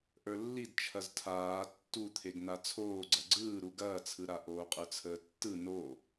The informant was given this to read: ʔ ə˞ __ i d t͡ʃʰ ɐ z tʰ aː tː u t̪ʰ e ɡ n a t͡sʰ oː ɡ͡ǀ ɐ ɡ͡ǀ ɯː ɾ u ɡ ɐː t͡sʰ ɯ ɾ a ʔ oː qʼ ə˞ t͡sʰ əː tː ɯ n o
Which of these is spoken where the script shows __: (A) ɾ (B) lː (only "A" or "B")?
B